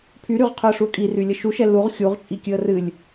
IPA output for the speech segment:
pʰ y ɾ y ʁ qʰ ɵ ə̯ ʂ u ə̯ kʼ i r y lʲ ə ʃ u ʃ ɛ l u ʁ xʲ u ʁ t͡ʃʼ i kʲ ɨ ə̯ r ɨ lʲ

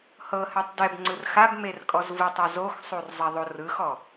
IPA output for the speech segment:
h ɤ h ɛ tˤ d ɛ b ŋ͡ǀ ɯ r x a b m e r kʼ ɔ z v ɯ tˤ a z o x sˤ u r zˤ ɛ ðˤ o r ɯ x ɔ

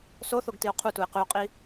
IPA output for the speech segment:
s o θ o ɡ t i o̯ qʰ u t u e̯ q ʉ o̯ qʼ i

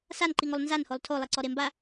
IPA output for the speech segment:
s a n ǃ i ŋ o lˠ n z a n h o lˠ tʰ o lˠ e ǀ ɔ ɾ e m b a

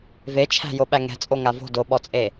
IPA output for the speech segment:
v e t͡ʃʰ æ̤ j o ɓ æ ŋ ɛ̤ t͡sʼ o ŋ a v o̤ d o ɓ ɔ t͡sʼ e

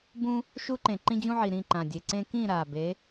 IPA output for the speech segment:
b ũ˥ | ʃ u˥ ǃ ẽ˨˩ ǃ ĩ˥ d͡ʑ ũ˥ ʕ i˨˩ ɾ ĩ˥˧ ǃ ã˨˩ dʲ e˨˩ ǀ ẽ˥ k ĩ˥˧ ɾ a˨˩ b e˨˥

